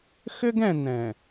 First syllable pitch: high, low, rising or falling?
high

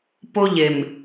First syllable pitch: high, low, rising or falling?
high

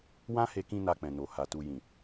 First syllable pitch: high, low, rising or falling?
high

